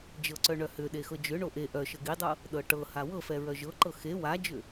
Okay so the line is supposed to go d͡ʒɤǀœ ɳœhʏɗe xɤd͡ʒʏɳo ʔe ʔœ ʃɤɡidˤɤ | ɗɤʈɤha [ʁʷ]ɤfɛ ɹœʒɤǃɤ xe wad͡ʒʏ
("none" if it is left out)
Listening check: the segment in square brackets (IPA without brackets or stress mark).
w